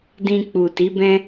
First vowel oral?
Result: no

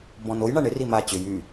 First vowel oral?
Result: no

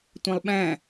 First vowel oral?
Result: no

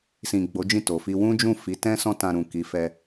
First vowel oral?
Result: no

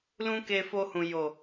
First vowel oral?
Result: no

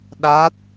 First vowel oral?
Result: yes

